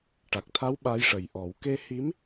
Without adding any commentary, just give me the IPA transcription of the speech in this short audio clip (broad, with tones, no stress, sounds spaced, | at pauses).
ʈ a˨˩ k̚ t̪ʰ a˧˥ w ɓ a˧˥ j ʂ ə˨˩ j ʔ ɔ˨˩˦ w k e˧ h i˧˥ m